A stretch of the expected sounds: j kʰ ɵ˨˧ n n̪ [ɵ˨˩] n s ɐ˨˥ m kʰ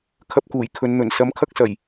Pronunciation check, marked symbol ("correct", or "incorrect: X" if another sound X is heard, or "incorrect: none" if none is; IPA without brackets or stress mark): correct